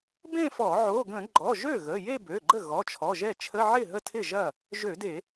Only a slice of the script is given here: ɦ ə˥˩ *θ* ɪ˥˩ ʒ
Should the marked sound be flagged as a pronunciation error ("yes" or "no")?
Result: yes